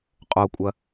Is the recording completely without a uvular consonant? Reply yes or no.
no